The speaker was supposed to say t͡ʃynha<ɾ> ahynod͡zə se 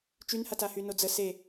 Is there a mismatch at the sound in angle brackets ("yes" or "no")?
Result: yes